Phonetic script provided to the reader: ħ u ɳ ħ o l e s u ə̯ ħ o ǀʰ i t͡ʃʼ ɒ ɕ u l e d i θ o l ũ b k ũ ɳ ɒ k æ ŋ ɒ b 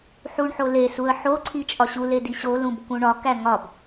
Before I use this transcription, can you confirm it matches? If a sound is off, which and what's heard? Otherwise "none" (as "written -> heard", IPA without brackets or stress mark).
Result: θ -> ɕ